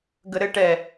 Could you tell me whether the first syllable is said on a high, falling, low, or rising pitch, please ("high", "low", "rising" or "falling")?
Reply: low